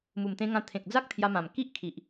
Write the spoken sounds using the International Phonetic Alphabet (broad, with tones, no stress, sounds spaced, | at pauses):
m u˨˩ m t̪ ẽ˧ ŋ ã˧ t̪ʰ ẽ˨ k̚ d͡z a˦ k̚ t̪ʰ j a˧ m ã˨˩ m k i˦ ʔ kʰ i˨ ʔ